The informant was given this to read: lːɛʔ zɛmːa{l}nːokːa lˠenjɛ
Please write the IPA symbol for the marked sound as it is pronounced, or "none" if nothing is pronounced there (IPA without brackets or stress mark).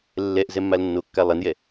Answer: l